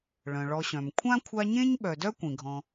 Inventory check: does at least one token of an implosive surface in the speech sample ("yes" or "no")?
yes